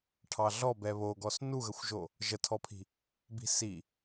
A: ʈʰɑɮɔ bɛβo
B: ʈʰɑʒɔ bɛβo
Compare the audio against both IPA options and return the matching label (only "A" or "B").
A